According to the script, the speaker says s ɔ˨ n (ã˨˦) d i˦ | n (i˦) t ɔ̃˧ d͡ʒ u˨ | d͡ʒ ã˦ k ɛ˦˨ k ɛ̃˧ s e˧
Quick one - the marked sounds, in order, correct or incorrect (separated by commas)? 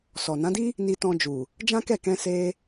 correct, incorrect